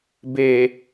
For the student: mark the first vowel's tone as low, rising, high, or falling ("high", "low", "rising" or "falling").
low